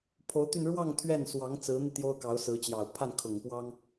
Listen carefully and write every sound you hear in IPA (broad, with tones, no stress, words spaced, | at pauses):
pʰo˧˥ʊ̯t̪y˥˧n ɻwɑ˥˧ŋ t̪ʰɥɛ˥˩nswɑ˧˥ŋ t͡sɹ̩˧˥n̪i˧ t̪jo˥ʊ̯kɑ˧˥ʊ̯sɹ̩˧˥t͡ɕjɑ˨˩ʊ̯ pʰa˥˩nkʰʊ˨˩ŋpwɑ˥ŋ